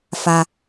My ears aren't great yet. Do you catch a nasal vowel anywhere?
no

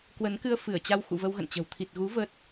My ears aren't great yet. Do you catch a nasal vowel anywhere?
no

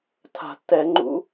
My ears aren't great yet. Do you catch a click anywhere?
yes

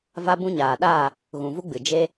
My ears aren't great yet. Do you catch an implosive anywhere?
yes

